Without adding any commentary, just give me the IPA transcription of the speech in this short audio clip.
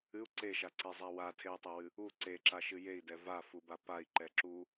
ɨ u̯ ǀ e ʃ a ǀ e zˤ a w a tʰ e u̯ tˤ e w ɨ | u ǀ e ǁ a ʃ ɨ j e i̯ d ɛ v a f u b a p a i̯ ǃ ɛ ǁ u

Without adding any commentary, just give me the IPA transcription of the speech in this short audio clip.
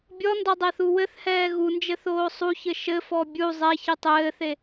bʲ ɔ n d ɔ dˤ ɛ θ u w ɘ θ h ɛː ɣ u n d͡ʒ ɘ θ oː sˤ u ç ɘ ʃ ɘ f ɔ bʲ u zˤ ɛ ç ɨ tˤ ɘː θ e

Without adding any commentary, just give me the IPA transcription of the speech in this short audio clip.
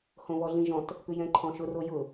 h õ β ɔ ɮ ĩ ʒ ɔ̃ t | p ʉ j ɛ̃ ǃʰ ɔ̃ ʃ ʊ r o j ʊ

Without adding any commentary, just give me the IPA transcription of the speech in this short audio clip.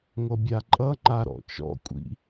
ŋʷ ʌ bʲ a ǃʼ ʌ ŋ͡ǃ a ɾ ɔ̰ t͡ʃ ɔ̰ kʷʼ ḭ

